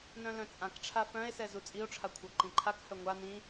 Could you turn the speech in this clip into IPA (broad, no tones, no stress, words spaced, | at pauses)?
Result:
nœ̃lœ̃t͡sʼãkʈ͡ʂʰa fœ̃e̯sɛ zut͡sʼio̯ʈ͡ʂʰa kʷʰɤǃĩǃʰakhœ ŋʷa nĩ